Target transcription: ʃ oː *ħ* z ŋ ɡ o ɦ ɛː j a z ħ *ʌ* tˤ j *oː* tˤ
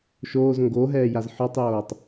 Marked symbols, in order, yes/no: no, no, yes

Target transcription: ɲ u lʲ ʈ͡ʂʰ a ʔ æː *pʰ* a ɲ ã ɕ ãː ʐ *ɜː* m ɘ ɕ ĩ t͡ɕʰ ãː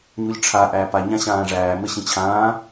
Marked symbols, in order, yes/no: no, no

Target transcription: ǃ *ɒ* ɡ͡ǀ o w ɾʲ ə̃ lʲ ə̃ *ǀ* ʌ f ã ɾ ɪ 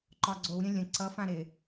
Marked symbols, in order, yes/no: yes, yes

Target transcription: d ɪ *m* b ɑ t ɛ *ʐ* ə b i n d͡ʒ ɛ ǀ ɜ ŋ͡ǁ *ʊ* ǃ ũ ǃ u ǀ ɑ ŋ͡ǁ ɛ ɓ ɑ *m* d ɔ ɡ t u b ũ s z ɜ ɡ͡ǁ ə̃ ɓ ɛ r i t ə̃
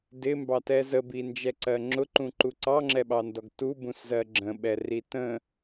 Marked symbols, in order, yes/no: yes, no, yes, no

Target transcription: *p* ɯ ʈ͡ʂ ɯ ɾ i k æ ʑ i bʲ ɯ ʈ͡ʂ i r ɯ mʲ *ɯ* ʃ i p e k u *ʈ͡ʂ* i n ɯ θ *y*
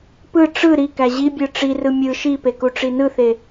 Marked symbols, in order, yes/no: yes, yes, yes, no

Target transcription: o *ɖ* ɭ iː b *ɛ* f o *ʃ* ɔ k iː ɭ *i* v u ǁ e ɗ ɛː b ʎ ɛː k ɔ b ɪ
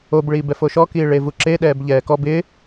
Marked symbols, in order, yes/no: no, yes, yes, no

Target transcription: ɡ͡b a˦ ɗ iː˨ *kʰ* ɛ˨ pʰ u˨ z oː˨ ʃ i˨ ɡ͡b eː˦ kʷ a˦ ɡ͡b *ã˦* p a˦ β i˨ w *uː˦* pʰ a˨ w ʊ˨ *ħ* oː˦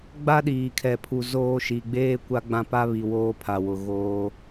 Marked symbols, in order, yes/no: yes, yes, no, no

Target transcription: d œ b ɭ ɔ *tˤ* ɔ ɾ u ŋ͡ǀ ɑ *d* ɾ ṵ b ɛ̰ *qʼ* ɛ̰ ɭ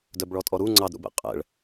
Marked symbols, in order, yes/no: no, yes, yes

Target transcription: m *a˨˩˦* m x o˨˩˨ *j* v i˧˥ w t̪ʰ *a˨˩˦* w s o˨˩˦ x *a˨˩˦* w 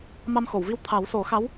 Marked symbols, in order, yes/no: no, no, yes, no

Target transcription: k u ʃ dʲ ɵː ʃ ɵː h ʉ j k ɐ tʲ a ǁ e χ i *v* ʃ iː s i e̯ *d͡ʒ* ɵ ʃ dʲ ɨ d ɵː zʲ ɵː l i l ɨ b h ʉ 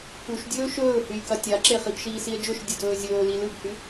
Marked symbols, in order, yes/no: no, yes

